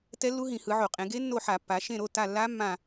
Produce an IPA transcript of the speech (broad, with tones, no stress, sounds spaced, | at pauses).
t ɛ˦˥ lː u˦˥ ɦ ĩ˧˩˧ h ɯ˩˧ ʕ o˧˩˧ qʼ ẽ˩˧ ɡ e˦˥ nː o˦˨ ħ a˧˩˧ pː a˩˧ ʃ ẽ˦˨ ɾ o˩˧˩ t a˦˨ lː a˦˥ mː ã˦˨